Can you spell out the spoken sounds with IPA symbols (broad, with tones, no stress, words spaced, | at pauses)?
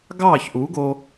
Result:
ɡɑː˦˨çʔu˨˦ɡo˧